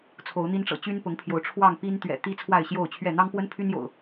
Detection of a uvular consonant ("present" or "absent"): absent